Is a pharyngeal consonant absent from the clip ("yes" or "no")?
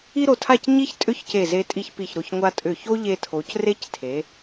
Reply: yes